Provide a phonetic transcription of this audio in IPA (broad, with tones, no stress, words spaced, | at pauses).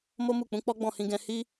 mo˦mu˦˨ k͡pũ˨˦k͡pɔ˦ɡ͡bɔ̃˦˨hĩ˧ ɡɛ̃˧ hi˦